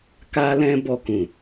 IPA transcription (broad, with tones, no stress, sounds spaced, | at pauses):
k a˧ l ɛ̃˧ b ɔ˨ k ũ˨